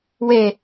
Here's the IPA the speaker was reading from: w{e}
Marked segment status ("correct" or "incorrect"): correct